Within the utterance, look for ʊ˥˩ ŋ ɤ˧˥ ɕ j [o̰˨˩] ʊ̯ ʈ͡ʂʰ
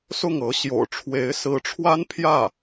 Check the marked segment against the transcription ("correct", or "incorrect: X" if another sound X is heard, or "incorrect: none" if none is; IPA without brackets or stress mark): correct